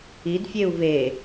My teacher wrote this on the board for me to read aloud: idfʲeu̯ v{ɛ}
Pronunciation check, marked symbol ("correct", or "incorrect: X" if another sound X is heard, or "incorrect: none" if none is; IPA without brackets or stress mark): incorrect: e